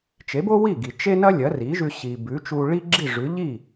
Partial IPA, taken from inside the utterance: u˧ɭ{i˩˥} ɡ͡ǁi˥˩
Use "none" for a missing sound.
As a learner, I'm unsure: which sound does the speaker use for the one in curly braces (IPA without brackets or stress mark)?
i˥